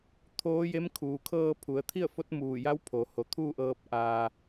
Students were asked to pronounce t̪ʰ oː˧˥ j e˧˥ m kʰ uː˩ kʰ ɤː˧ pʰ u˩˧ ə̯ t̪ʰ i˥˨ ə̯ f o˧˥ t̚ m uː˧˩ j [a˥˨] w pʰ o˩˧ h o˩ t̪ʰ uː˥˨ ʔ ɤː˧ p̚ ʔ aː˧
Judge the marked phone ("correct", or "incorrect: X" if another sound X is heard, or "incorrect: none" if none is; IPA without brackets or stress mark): incorrect: a˧˥